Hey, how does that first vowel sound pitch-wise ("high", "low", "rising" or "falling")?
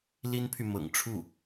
high